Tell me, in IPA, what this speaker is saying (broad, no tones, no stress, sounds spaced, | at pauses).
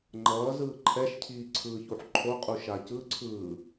ŋ͡ǃ ʌː z ɯː ǃʰ ɛ ʃ cʰ iː ǀʰ ɯː ç u ħ ǃʰ o qʼ u ʃ a c ɯ ǀʰ ɯː